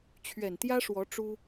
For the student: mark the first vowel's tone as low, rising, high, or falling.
low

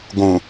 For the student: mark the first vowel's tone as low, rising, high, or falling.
low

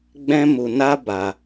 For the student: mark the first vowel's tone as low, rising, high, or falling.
high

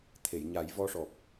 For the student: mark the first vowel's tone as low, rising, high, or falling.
low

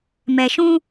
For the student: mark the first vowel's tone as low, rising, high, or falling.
low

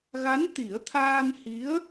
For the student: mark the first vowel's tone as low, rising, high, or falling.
rising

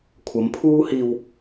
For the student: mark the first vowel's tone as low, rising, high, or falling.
rising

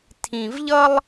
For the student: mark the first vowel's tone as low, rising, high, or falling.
low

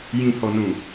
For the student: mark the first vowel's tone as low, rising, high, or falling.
low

